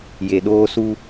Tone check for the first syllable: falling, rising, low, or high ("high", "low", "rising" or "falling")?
low